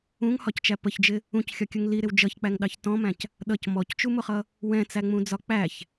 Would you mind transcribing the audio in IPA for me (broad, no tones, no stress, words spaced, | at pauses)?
ũŋhɒct͡ʃæ pəçd͡ʒɪ | ũcxʲɒkʲʊŋ liɾɪw d͡ʒʌçk͡pæŋɗɑç tɔ̃mæ̃c | ɗʌc mɔct͡ʃumʊχʌ | wɛ̃t͡sæŋ͡mũd͡zɒ k͡pæç